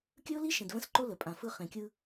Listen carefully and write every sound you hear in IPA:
kʲ ɵ˦ ʊ̯ l i˦ ʃ ẽ˨ d v ə̃˦ s ǃ o˦ l ə˨ pʼ ã˨ f ɯ˦ χ ẽ˨ kʲ ɯ˦

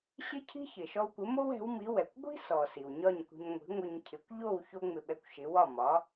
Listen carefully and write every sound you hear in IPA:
ɕ ɪ˥ cʰ i̤˥ ç ɪ˩ ʃ ɔ˧ w kʷ ɪ˩˥ m o˥ w ɛ̤˩˥ w m i˩˥ w ɛ˩ kʷ ɡʷ i̤˥ s ɔ˩ s i˩ w ɲ ɒ˥˩ ɲ kʷ i̤˧ ɲ ŋʷ i̤˩˥ ŋʷ ɪ˧ ɲ cʰ ɪ˩˥ kʷ ʎ o˥˩ w ç o˥ ŋ͡m ɪ˧ ɓ ɛ˧ kʷ ʃ ɪ˩˥ w ɒ˥˩ m ɒ˩˥

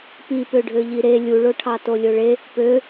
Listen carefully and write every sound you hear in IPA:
p i p ø ɖʱ ø ʎ i ɾ e lʲ u ɭ o ʈʰ ɑ t o lʲ o ɭ e | p ø

